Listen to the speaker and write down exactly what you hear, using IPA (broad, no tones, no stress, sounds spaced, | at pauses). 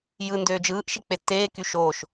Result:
j ɯ n d øː d͡ʒ ɯː ʔ ʃ i k͡p e tː eː k y ʃ oː ʃ